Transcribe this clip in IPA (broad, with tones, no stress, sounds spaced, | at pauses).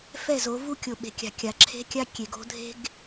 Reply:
f ɛ˦˨ z o˨˦ v u˦ kʲ o˨ ɓ e̤˨ kʲ a̤˨ kʲ a˨ ǁʰ e̤˦ kʲ a˦ kʲ e˨ ɡ o̤˦ dʱ e̤˦ ɡ